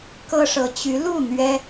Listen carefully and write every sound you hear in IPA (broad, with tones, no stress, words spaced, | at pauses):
kɤ˥ʂɤ˧˥ t͡ɕy˧˥lu˥˩ n̪ɥɛ˥